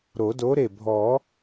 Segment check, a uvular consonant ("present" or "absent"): absent